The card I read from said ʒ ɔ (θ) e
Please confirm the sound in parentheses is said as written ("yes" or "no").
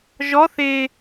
yes